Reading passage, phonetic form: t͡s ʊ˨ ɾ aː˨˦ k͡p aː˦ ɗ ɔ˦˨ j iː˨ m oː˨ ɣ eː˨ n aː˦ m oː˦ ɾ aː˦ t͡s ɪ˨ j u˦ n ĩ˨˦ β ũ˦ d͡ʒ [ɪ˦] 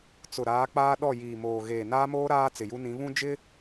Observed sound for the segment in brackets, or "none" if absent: ɪ˦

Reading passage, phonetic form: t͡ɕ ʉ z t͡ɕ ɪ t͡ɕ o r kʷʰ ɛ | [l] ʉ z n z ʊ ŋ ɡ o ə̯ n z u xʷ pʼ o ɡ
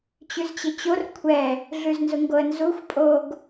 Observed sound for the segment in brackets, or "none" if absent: ɮ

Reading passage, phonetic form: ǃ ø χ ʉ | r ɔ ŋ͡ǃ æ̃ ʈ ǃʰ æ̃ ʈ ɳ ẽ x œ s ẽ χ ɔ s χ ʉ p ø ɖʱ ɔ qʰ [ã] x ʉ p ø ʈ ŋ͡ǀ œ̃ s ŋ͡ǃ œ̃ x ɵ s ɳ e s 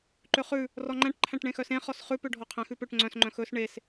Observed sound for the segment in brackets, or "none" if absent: æ̃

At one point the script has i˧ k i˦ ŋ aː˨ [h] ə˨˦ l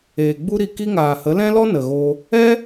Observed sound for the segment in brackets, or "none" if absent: h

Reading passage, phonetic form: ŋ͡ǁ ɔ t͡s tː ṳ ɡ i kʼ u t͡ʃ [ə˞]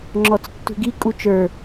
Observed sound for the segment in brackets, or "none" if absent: ə˞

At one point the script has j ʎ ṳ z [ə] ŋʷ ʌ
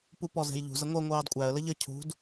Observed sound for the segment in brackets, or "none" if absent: ə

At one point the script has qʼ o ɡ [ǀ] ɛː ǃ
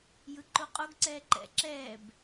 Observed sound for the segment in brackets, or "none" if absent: ǀ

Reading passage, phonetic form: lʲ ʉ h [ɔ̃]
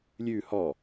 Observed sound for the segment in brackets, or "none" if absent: ɔ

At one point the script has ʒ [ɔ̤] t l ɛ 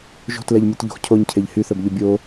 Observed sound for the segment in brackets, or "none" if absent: o̤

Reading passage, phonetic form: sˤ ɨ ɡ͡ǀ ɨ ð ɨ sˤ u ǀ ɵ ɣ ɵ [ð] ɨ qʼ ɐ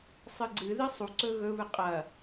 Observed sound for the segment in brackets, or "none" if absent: β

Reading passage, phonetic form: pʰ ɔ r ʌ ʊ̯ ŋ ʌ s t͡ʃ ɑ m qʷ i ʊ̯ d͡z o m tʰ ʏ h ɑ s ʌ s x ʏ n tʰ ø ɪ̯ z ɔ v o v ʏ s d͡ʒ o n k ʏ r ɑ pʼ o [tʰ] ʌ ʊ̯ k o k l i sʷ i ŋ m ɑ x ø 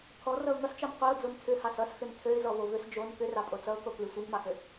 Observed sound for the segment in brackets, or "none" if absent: t͡s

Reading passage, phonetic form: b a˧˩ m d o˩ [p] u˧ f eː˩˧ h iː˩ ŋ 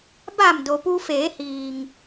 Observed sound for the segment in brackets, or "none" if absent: p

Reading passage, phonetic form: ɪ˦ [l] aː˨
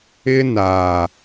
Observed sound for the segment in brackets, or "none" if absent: n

